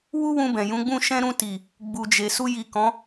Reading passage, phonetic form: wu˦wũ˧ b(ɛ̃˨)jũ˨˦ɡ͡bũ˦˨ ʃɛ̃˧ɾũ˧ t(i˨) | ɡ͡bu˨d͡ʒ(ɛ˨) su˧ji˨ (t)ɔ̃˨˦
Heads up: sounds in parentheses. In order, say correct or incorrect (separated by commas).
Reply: correct, correct, incorrect, incorrect